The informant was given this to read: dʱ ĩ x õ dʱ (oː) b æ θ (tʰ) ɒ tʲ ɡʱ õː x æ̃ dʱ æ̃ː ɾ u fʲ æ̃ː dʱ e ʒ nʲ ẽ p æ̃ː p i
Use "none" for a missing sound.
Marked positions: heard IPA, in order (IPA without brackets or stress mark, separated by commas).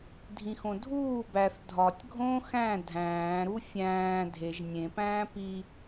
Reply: uː, dʱ